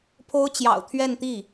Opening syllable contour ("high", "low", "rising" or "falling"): high